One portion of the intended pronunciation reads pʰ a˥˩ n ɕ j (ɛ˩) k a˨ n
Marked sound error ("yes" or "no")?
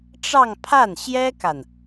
yes